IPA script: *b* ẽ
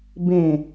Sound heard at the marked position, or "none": b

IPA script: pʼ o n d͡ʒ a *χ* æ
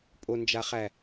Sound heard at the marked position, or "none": χ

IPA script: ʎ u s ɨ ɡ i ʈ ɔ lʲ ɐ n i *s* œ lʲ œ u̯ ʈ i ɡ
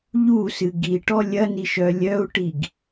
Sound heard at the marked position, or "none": ʃ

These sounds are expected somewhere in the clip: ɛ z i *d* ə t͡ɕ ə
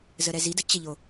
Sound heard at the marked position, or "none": d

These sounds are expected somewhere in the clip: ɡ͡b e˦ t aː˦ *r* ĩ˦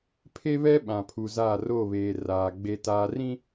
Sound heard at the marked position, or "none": r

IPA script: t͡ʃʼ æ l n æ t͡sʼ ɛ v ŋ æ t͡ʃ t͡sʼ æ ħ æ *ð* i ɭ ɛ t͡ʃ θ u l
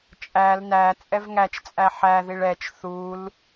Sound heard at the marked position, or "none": ð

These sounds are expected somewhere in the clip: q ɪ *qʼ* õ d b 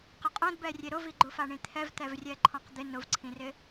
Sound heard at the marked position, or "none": qʼ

